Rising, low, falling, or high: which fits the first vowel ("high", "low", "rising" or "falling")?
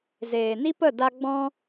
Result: low